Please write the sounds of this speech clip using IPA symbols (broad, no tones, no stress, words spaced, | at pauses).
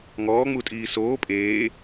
ŋɔːŋ͡mutʼiː soː pʼeː